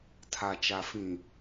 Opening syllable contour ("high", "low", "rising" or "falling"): low